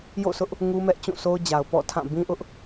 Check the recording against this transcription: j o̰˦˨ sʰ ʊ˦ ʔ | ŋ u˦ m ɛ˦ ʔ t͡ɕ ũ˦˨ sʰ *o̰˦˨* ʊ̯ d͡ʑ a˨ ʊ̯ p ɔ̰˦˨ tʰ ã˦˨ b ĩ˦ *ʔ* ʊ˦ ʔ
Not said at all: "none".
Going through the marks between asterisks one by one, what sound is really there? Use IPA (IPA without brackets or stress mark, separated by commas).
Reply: o˦, ʔ